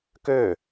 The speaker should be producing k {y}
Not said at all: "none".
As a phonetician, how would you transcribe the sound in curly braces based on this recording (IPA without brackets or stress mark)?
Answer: ø